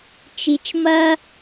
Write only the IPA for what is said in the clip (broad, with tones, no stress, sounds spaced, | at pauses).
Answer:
t͡ʃ i˧ t͡ʃ m ɐ˦